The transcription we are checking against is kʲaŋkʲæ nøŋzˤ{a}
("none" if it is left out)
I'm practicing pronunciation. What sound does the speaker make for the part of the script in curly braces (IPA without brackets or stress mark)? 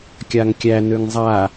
a